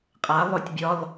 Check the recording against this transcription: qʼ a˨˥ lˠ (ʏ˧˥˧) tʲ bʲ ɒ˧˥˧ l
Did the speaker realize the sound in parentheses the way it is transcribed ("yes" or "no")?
yes